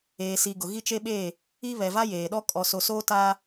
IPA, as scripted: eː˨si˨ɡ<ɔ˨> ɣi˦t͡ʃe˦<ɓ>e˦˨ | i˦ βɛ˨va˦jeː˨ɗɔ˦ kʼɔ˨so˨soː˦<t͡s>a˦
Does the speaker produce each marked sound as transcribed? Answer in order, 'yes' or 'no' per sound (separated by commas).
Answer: no, yes, no